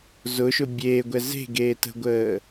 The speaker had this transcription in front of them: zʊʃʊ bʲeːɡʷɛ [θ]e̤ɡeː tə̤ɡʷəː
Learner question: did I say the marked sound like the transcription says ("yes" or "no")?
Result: no